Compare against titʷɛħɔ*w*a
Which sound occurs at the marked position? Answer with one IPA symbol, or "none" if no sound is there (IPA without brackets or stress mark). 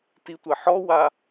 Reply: w